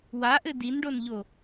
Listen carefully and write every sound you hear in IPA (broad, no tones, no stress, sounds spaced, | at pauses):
w a ʔ ɘ d i n ɖ o n ʎ o